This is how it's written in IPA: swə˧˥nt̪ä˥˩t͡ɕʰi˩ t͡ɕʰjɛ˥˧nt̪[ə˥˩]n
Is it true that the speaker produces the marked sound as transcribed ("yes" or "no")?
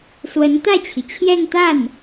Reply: no